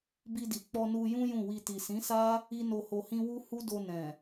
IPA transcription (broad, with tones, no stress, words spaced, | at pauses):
bi˧di˨ k͡pɔ˧nu˧jũ˦ jũ˦˨wi˧ ti˨sĩ˨˦sa˦ | i˦no˧ho˧hĩ˦ wu˦ hu˦do˧nɛ̃˨